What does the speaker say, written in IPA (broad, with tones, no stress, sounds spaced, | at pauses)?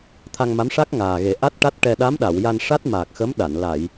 t̪ʰ a˧ ŋ m a˧˥ m ʂ a˦˥ k̚ ŋ aː˨˩ ɣ e˨˩˦ ʔ a˦˥ t̚ ʈ a˦˥ t̚ ʈ ɛ˧ ɗ a˧˥ m ɗ a˨˩˨ w j a˧ n ʂ a˦˥ t̚ m aː˨˩ k̚ x ə˧˥ m ɗ a˨˩˨ n l a˨˩˨ j